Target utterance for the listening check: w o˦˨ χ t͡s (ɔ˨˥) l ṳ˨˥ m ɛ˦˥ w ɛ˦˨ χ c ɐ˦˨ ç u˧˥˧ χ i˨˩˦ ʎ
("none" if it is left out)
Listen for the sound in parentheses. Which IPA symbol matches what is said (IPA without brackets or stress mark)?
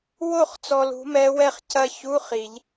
ɔ˨